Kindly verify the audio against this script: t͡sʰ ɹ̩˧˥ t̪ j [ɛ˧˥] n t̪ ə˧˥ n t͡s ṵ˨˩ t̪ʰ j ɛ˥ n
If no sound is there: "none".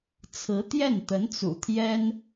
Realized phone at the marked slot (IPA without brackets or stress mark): ɛ˥˩